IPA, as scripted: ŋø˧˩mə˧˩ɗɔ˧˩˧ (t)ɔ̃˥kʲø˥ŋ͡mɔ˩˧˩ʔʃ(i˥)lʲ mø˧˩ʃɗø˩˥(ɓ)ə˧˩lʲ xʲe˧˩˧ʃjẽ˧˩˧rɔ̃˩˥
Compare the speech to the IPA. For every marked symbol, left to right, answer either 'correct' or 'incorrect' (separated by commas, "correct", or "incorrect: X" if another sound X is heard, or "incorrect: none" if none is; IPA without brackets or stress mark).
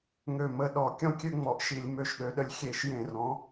incorrect: kʲ, incorrect: i˧˩˧, incorrect: ɗ